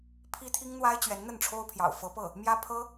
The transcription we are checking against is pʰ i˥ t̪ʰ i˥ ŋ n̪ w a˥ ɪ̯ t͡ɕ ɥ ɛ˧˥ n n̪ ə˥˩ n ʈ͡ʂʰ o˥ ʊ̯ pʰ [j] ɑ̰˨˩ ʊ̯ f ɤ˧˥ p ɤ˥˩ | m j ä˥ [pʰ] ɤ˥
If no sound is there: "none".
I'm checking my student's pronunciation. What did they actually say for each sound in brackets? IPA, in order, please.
j, pʰ

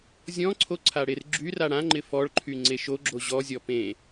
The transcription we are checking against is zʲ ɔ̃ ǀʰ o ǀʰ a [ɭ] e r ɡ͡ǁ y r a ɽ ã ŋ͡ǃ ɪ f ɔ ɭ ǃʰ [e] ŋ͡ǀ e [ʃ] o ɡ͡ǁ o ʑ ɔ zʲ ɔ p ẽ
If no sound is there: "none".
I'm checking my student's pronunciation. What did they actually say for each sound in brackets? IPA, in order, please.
ɽ, y, ʃ

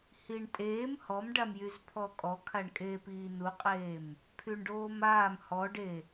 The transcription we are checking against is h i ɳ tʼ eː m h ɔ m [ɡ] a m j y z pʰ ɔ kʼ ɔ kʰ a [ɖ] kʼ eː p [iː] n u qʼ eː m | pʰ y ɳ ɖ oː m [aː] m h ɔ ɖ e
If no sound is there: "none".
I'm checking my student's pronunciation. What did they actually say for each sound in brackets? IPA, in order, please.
ɖ, ɳ, iː, aː

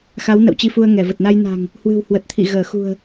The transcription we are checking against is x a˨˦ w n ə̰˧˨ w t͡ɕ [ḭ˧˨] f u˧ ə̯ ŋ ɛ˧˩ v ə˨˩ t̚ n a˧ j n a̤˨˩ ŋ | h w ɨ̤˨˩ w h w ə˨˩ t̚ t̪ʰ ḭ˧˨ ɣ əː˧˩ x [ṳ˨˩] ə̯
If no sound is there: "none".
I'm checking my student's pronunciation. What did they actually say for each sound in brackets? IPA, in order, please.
i˧, ṳ˨˩

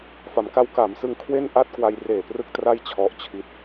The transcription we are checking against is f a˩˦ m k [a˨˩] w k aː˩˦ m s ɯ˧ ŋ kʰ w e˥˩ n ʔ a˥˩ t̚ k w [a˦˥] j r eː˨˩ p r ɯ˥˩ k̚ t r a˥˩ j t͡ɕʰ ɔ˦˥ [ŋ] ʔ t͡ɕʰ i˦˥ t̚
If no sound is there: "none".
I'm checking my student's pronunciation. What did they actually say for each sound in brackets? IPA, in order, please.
a˦˥, a˧, none

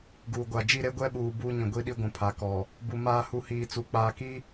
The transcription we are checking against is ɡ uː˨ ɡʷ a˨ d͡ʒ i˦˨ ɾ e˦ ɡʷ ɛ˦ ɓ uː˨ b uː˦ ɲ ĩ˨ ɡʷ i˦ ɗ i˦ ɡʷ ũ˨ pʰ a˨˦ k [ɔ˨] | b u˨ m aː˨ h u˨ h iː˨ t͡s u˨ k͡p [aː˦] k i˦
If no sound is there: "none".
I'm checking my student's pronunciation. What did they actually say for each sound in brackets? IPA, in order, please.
ɔ˨, aː˨

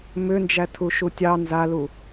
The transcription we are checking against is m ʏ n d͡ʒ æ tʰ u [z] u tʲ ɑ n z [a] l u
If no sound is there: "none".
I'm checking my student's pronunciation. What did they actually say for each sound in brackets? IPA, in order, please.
ʃ, a

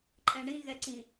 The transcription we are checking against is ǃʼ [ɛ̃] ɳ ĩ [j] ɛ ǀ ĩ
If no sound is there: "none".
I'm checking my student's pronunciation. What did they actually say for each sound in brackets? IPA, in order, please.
ɛ̃, ɣ

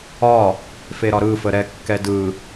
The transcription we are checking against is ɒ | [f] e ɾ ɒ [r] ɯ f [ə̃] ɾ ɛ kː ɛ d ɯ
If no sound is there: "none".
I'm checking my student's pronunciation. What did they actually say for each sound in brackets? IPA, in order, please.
f, ɾ, ə

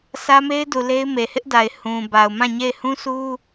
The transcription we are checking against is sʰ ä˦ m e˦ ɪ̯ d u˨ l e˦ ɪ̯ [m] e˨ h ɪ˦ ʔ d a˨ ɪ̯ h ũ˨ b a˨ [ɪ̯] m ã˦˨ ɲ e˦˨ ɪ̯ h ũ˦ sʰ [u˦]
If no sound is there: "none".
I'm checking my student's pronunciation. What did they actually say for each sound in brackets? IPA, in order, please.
m, ʊ̯, u˦

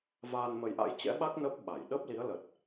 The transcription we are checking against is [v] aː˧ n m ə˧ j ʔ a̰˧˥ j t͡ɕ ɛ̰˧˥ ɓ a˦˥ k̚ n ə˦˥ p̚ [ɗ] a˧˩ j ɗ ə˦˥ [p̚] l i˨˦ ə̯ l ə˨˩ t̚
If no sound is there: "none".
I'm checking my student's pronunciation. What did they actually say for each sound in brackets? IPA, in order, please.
v, ɓ, p̚

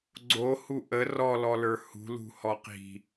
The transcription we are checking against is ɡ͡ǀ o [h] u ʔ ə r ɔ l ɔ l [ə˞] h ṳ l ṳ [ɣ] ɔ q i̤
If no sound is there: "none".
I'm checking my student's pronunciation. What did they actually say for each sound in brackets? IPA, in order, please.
h, ə˞, h

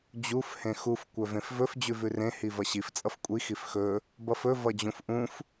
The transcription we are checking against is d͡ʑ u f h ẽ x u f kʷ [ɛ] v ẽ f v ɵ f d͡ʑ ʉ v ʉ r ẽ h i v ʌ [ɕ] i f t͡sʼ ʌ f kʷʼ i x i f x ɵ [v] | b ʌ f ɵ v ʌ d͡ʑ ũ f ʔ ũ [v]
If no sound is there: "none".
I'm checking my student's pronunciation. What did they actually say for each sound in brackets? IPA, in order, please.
œ, ɕ, none, f

